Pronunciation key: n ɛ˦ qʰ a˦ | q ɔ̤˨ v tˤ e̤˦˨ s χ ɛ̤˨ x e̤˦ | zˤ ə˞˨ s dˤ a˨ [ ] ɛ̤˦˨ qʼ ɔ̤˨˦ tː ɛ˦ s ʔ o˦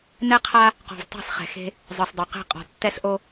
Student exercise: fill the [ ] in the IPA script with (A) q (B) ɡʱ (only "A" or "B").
A